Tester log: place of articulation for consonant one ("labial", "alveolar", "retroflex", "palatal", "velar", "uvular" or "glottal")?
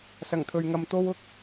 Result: alveolar